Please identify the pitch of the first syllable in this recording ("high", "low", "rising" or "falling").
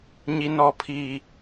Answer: high